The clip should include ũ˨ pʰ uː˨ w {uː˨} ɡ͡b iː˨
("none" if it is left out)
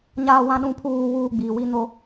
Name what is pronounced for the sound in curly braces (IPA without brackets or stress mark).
uː˨